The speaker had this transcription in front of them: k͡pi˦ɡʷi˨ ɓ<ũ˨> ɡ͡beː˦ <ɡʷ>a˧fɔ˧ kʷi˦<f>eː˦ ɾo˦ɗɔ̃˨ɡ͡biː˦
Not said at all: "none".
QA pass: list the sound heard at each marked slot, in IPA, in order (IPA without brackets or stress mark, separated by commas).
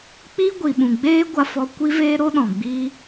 ũ˨, ɡʷ, v